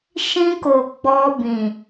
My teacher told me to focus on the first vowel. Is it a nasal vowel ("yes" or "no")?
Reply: yes